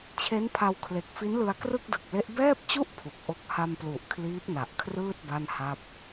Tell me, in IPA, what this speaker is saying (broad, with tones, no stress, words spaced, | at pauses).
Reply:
t͡ɕʰe˦˥npʰa˧wkʰle˨˩k̚ fi˦˥nlɯ˧a̯ krɯ˥˩k̚dɯ˨˩k̚le˦˥ʔ bɛː˥˩p̚t͡ɕu˥˩ʔ pʰu˨˩k̚ʔo˥˩k̚ ha˧mplu˨˩ʔ kʰliː˦˥p̚na˨˩ʔkʰrɯː˥˩t̚ ba˥˩nha˥˩p̚